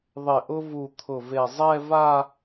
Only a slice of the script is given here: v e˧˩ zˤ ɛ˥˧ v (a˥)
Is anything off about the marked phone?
yes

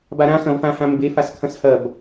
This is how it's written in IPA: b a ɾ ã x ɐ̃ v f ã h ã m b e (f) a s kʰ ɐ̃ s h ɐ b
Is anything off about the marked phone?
no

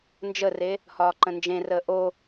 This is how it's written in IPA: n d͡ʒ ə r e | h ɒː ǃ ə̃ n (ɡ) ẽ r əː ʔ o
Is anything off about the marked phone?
yes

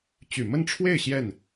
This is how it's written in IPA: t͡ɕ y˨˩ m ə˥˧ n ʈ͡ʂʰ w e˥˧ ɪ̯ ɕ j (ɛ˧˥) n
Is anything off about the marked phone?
yes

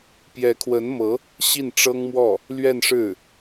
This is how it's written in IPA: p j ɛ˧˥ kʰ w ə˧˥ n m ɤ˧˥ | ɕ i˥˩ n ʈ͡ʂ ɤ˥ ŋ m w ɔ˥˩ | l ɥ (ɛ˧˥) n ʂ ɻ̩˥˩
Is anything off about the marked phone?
yes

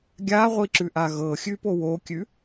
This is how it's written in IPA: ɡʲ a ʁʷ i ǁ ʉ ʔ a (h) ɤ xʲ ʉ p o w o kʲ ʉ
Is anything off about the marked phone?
yes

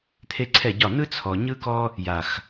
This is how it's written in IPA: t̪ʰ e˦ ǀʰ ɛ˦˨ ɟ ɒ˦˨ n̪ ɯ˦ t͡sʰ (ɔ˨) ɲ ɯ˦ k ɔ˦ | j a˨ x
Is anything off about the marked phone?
no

